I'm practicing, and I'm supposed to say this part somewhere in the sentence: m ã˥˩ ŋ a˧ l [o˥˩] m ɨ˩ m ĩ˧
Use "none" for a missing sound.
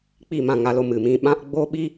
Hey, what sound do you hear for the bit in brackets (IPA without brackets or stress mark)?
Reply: o˧